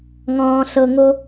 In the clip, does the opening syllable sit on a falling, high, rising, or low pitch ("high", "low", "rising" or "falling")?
low